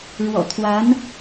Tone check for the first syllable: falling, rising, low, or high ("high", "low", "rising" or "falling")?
low